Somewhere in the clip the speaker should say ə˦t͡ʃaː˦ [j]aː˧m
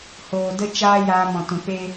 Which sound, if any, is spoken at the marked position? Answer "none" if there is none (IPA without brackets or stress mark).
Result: j